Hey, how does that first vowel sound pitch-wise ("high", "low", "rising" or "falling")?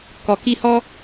low